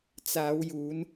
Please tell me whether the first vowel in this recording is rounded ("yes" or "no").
no